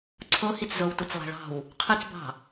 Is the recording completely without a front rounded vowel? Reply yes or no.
no